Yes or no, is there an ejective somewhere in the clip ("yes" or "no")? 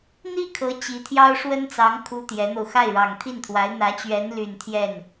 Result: no